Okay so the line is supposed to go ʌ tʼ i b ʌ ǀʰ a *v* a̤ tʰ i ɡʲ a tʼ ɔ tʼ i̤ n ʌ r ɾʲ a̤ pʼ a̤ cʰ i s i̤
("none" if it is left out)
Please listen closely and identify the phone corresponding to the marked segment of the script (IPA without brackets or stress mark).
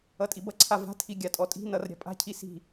v